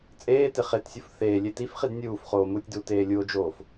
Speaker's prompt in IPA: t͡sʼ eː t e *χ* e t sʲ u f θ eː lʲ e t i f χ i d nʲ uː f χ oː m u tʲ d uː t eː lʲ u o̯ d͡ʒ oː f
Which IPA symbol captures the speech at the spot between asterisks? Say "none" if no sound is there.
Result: χ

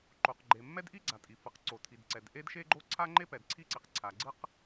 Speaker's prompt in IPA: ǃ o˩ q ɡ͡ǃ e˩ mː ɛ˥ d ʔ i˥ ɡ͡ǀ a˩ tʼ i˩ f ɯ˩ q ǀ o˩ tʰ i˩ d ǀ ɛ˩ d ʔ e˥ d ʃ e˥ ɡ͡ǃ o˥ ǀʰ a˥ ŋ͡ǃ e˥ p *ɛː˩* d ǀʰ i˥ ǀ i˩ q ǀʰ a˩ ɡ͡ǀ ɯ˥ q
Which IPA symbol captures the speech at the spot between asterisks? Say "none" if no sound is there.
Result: ɛ˩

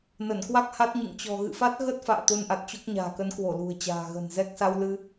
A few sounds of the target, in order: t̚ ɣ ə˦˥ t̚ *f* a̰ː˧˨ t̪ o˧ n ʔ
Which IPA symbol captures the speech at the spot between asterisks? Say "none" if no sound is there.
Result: f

